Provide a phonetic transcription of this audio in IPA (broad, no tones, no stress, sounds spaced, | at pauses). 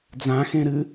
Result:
d͡z ã x ẽ ɾ ɨ